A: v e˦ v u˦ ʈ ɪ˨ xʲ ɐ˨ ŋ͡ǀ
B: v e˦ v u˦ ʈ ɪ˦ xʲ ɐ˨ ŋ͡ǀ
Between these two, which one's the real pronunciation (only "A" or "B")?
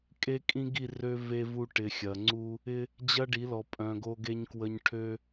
A